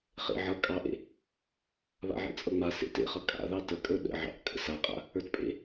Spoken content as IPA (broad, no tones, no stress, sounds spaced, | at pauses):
χ ḛ ʕ ʌ kʼ ɑ ʔ ḛ | β a̰ ʕ ḛ t͡sʼ ʌ ŋ͡m a s ḛ t ḛ χ ʌ kʼ a̰ ð ɑ t ə kʼ ə˞ ɗ ə̰ ʕ ɑ̰ ʔ kʼ ə̰ s a qʼ a̰ | ə˞ t pʼ ḛ